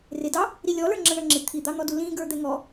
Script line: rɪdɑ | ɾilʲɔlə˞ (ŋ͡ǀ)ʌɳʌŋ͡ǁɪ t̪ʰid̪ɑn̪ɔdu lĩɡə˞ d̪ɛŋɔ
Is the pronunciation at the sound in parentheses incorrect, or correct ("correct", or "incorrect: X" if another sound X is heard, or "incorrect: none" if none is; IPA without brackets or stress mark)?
incorrect: ŋ͡ǁ